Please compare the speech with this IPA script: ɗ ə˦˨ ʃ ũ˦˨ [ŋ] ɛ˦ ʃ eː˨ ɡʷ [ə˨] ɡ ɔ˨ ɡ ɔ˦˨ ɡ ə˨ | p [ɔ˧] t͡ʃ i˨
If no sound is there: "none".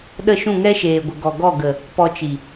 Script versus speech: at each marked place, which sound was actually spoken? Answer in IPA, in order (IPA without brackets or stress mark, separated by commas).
ŋ, ə˨, ɔ˧